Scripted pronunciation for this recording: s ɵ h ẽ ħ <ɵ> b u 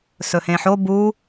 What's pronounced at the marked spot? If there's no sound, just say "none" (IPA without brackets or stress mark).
o